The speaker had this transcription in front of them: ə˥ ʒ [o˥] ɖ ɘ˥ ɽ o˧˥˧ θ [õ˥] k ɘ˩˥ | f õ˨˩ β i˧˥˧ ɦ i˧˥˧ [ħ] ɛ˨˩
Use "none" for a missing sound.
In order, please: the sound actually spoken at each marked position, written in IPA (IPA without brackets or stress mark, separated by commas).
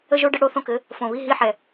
o˥, õ˥, ħ